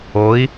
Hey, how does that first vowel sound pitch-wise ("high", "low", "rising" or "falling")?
rising